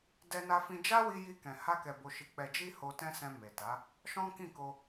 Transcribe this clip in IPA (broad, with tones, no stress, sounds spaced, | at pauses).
d ɛ˧ n a˧ f ĩ˧ d͡ʒ a˦ w i˧ j i˧ k ɛ̃˨ h a˧ k ɛ˨ b o˨ ʃ i˨ k͡p ɛ˨ d͡ʒ i˧ h o˧ t ɛ̃˦ s ɛ̃˧ m e˨ t a˨˦ | ʃ ɔ̃˦ k ĩ˦˨ k o˧